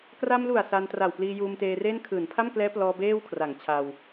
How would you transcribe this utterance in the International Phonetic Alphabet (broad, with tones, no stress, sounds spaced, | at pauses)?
k r a˧ m l u˨˩ a̯ s a˧ n t r a˨˩ w p l iː˧ j uː˧ m t eː˧ r eː˥˩ n kʰ ɯː˩˦ n pʰ a˥˩ m k l ɛː˦˥ p l ɔː˧ b eː˥˩ w kʰ r a˩˦ ŋ t͡ɕʰ a˧ w